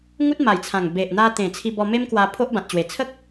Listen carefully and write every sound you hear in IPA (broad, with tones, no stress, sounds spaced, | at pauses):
ŋ u˦ t̚ m a˨˩ j t͡sʰ ã˨˩ ŋ b e˨ ʔ n̪ a˧ t̪ ẽ˨˩ t͡sʰ i˧ b ɔ˧ m e˦ m k w a˧ pʰ o˦ ʔ b ã˨ t̚ t͡ɕ w e˨˩ t͡sʰ ə˦ k̚